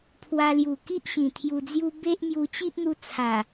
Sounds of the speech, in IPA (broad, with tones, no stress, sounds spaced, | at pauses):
pʰ w a˧ l j u˨˩ k i˦ ʔ ɕ ĩ˨˩ t̪ʰ j u˧ d͡z j u˦ b e˦ ʔ m j u˧ t͡ɕ i˦ ʔ n̪ u˧ t͡sʰ a˨˩